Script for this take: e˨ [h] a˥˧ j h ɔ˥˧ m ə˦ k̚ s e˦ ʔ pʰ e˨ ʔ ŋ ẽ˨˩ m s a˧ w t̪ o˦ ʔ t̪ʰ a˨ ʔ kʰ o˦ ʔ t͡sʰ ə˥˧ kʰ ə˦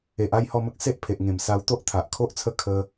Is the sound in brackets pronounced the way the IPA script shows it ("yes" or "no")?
no